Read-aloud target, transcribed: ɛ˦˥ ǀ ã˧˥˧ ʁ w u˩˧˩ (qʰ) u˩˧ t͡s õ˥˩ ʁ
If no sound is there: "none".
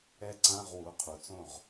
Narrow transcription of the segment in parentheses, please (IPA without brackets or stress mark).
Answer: qʰ